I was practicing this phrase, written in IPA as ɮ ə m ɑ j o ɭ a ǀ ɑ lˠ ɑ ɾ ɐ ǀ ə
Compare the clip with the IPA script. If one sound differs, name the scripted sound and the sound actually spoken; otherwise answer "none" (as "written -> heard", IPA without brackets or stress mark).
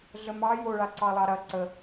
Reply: none